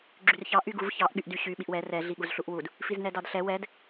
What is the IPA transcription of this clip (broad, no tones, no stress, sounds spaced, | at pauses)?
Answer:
ɡ͡ǁ y r ç ɑ ʔ y ɡ u v ç ɑ ʔ ɠ y ʔ d y ɕ y ɓ i ʔ w ɛ r ɛ ɮ i ɠ u z ɬ u ʔ w u d | f i z n ɛ d ɑ d ɬ ɛ w ɛ d